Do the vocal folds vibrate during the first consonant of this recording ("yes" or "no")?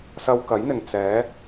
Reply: no